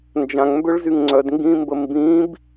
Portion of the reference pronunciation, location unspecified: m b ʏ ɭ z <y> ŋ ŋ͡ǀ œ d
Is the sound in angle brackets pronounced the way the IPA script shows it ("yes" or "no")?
yes